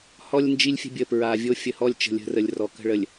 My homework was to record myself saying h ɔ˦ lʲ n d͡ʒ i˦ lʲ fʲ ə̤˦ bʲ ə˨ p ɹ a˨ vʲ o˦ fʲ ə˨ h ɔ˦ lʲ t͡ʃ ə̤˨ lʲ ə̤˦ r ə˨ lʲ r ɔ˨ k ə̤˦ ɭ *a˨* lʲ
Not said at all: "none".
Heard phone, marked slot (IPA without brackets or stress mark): ə˨